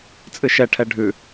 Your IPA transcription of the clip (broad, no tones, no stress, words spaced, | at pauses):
t͡sʼɨʃɛ ʈʰɛɖʱʉ